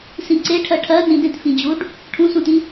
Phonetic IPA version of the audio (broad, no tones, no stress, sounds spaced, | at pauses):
s ĩ ǀ e ʈʰ ɜ ʈʰ ɜ n ĩ d ẽ t f ĩ d͡ʑ u ɖ | ʈʰ ũ s ũ t ĩ